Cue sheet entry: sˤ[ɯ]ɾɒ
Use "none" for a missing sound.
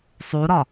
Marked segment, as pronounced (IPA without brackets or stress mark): u